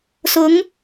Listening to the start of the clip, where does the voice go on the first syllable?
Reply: rising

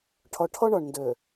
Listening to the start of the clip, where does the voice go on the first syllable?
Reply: low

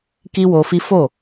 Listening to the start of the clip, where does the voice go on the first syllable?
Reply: high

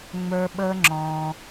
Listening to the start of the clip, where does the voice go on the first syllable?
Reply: high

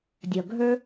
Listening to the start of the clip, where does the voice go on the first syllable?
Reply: low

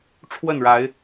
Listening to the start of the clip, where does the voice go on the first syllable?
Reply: falling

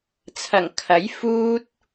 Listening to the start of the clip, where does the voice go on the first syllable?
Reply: low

